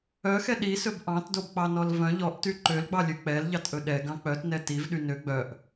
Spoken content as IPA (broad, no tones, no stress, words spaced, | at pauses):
œxɛ ɗisɵb ʔɑ̃tdobk͡pɑnɔl vœ̃ ʎɔʔty ǃølɡ͡bɑlʲø k͡pɛlʎɑtʔɵ ɗɛɡɑ̃ k͡pœtnɛ tivɗy nø ɡ͡bœʔ